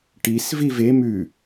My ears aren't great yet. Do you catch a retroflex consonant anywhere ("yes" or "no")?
yes